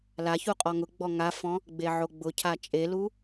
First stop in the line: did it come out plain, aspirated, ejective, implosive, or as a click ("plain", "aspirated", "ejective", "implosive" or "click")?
ejective